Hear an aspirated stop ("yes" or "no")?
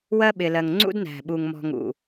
no